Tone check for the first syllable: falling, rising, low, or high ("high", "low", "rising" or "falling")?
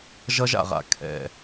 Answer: high